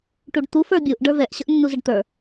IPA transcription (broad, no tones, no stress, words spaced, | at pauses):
ʈuɖt̪u fə˞bʲuʔ ɖə˞vɛʔ ɕəʔnːuzəɖt̪ə˞